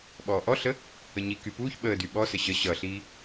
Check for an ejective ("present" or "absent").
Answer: absent